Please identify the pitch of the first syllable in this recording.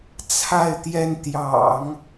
falling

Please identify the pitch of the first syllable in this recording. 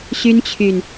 high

